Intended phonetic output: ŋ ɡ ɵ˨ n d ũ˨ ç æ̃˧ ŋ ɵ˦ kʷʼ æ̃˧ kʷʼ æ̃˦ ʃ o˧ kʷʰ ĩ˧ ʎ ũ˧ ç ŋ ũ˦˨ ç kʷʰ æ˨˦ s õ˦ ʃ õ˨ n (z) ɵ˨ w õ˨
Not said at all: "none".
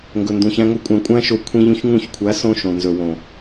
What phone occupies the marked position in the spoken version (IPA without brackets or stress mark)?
z